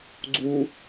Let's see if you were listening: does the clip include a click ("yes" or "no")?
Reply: yes